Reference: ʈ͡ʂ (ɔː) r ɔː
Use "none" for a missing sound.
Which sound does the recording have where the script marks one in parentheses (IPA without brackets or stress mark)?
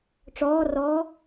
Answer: ɔː